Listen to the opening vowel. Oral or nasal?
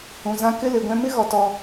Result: nasal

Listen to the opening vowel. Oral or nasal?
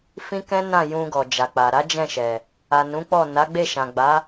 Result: nasal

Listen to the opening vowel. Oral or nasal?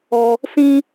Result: oral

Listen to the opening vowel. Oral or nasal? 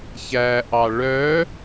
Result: oral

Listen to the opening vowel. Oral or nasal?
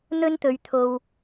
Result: oral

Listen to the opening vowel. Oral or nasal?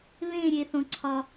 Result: nasal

